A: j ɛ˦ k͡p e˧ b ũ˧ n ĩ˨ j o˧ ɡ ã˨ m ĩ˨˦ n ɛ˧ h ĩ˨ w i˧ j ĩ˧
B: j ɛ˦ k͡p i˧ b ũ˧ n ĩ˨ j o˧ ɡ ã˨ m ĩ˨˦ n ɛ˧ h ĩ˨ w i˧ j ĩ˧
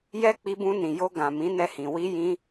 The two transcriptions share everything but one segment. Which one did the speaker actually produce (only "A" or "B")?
B